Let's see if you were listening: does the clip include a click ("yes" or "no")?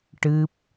no